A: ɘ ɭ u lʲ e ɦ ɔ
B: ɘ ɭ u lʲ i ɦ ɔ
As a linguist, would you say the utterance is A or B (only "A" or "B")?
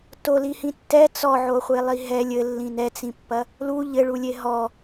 A